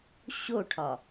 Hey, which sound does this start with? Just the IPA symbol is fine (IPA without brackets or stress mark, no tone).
ɕ